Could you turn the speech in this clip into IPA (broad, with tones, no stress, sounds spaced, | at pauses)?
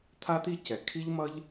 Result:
t̪ʰ a˥ t̪ i˥ c ɛ˩ kʰ i˥ ʎ m ʌ˥ ʎ